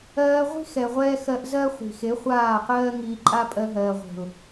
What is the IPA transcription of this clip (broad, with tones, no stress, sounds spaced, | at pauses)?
ɜː˧ ʁʷ i̤˦ x ɛ˨ ʁʷ ɛː˧ x ɜ˧ ʔ z ɜ˦ χʷ i̤˨ x e˨˦ χʷ aː˦˨ q ɜː˦ ŋ iː˧ ǃʼ a˦ pʼ ɜ˧ ɦ ɜː˨ ʁʷ e̤˨ ʊ̯